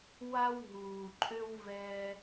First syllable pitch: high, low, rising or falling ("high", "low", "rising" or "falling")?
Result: high